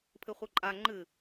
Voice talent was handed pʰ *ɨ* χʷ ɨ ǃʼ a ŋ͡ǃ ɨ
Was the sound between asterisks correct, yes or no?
yes